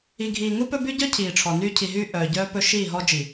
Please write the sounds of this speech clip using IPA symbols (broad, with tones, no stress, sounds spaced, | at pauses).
i˨ ɡʱ iː˨ ŋ u˦ p ɵ˦ b y˦ ɟ œ˦ cʰ iː˨ ʈ͡ʂʰ ɔ˨ n y˦ cʰ i˨ ɦ yː˦ ʔ œː˨ ɟ œː˦ p ɵ˦ ʃ iː˦˨ ɦ ɔ˦ d͡ʒ i˨